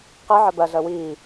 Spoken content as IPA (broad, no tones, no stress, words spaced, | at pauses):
qi ʕɜbɜ ɮəːwiː